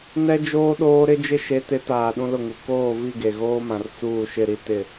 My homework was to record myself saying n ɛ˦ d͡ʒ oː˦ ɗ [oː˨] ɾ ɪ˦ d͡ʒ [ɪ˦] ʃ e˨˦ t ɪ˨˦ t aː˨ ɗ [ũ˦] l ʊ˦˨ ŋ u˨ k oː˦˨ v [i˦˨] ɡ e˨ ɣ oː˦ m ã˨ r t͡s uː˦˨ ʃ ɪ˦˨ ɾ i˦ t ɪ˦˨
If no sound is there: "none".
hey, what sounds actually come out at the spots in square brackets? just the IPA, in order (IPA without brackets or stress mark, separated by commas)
oː˦, ɪ˦, ũ˦, i˦˨